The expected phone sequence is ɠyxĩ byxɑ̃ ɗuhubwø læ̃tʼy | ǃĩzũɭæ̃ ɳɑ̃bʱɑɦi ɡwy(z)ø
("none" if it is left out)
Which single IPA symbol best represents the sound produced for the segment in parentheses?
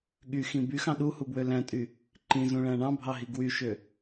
ʃ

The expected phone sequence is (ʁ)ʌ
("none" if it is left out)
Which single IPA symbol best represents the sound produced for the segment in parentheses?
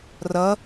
r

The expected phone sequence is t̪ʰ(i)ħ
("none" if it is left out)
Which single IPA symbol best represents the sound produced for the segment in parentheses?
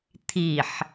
i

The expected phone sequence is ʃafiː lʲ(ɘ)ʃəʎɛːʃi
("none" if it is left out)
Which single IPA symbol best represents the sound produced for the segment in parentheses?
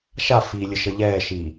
ɘ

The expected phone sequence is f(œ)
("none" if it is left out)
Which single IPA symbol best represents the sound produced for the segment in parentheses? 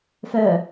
œ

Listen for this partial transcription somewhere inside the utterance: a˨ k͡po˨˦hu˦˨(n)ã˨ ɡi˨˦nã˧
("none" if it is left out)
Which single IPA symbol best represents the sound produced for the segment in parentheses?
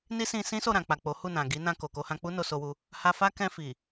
n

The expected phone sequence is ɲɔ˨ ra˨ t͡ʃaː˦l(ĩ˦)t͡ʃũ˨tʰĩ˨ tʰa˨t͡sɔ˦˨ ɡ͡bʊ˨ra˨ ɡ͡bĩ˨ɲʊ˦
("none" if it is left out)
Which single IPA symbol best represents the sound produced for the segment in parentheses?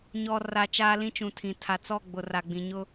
ĩ˦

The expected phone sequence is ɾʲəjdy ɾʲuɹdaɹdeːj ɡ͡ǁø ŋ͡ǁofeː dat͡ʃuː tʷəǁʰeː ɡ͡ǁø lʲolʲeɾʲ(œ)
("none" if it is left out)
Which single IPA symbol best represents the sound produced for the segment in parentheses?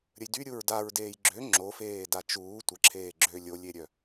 œ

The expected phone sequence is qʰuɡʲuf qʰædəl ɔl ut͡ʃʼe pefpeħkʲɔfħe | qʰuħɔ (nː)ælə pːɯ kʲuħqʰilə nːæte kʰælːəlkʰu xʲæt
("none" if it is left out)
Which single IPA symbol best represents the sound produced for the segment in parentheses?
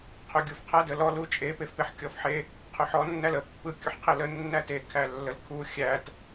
nː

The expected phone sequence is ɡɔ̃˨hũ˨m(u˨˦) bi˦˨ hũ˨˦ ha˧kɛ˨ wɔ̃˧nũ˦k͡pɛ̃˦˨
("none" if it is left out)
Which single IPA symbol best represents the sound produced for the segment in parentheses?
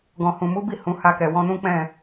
u˨˦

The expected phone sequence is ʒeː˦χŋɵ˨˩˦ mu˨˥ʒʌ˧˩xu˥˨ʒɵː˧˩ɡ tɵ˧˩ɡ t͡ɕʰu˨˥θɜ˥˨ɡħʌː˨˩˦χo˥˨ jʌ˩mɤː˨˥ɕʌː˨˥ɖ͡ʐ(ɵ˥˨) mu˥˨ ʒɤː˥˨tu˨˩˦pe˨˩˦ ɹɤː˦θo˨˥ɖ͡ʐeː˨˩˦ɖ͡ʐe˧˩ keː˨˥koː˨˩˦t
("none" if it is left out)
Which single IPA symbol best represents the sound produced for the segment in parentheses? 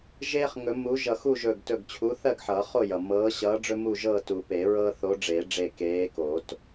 ɵ˦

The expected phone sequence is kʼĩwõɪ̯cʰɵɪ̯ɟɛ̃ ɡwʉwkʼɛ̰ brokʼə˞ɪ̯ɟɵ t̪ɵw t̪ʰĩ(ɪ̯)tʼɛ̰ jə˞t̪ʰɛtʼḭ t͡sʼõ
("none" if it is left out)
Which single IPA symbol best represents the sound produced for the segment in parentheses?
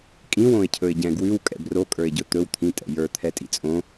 none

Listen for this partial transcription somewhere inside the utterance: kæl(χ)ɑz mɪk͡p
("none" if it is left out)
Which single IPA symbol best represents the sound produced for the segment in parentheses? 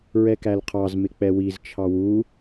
qʰ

